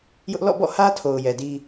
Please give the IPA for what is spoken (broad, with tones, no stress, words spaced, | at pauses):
jʊ˦ʔ lɔ̰˦˨bɔ̰˦˨hä˦ tʰo˨ʊ̯jɛ˨di˦